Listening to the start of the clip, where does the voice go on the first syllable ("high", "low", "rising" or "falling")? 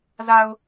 low